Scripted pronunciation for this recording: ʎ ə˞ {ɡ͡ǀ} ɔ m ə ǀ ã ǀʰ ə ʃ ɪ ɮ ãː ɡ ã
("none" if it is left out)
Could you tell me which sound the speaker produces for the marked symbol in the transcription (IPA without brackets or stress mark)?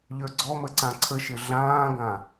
ɡ͡ǀ